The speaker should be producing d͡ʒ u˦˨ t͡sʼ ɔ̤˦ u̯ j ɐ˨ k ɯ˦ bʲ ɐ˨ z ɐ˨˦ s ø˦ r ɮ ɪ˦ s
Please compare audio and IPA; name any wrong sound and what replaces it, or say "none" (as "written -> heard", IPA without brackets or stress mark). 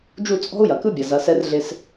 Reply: ø˦ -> ɛ˦